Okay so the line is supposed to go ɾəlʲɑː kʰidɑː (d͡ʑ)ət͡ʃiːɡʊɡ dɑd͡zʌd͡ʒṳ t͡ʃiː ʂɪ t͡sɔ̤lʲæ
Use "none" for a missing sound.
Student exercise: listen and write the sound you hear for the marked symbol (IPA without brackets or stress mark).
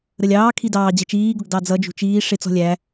d͡ʑ